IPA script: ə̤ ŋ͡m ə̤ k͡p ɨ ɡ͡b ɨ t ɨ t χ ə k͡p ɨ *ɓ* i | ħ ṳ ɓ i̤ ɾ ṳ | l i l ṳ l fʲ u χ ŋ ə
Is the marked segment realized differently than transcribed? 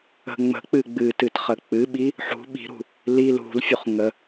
no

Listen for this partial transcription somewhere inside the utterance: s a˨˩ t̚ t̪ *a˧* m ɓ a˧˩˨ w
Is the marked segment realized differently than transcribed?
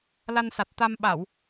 no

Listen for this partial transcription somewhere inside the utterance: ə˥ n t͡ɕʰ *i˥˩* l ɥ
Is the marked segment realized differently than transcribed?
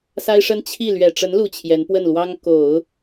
no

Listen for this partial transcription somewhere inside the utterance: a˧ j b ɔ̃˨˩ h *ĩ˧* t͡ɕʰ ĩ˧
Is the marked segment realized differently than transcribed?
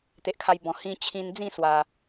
no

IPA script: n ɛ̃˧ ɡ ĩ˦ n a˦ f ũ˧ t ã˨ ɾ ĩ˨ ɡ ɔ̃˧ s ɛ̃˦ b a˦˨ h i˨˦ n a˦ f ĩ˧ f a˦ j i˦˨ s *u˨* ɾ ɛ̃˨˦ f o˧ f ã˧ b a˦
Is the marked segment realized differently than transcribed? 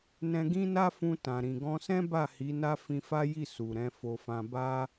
no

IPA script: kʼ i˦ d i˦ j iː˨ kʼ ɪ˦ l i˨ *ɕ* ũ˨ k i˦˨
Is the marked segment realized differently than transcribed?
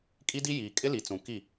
yes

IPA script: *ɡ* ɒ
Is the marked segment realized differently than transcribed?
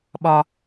yes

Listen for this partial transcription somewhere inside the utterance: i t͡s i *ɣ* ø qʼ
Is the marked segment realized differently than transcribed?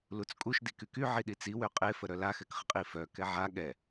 yes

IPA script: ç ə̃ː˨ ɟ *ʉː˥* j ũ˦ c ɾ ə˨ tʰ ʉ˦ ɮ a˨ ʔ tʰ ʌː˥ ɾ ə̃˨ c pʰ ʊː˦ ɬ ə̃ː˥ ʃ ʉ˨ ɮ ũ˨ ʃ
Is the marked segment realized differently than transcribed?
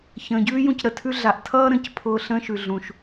no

